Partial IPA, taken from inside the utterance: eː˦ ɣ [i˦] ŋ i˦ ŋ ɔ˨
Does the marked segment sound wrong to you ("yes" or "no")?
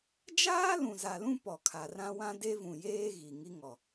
yes